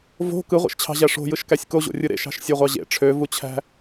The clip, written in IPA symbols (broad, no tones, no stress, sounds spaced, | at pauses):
v o̤ k ɯ ʁʷ ḛ ʃ t͡ɕʰ ɑ̤ ʑ æ ʂ o̤ j ɯ ʃ k æ sʲ k o ʑ o̰ rʲ ɯ ɾ ḛ ʃ ɑ̤ ʃ sʲ o ʁʷ ɑ ʑ ḛ ʈ͡ʂʰ ø v u t͡ɕʰ æ̤